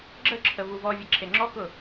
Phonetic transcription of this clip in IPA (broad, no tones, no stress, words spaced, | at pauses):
ɡ͡ǁəǁʰə vuvɔvʲə ǁʰeŋ͡ǁɔkʊ